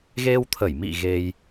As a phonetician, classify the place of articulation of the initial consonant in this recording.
velar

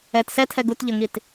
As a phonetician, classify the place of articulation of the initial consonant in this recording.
alveolar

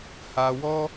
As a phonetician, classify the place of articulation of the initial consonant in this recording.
glottal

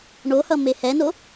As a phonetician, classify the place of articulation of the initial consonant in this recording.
retroflex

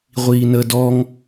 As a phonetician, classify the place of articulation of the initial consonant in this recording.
uvular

